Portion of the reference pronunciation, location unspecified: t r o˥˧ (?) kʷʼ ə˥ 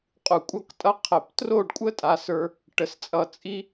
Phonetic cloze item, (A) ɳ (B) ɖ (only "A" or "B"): B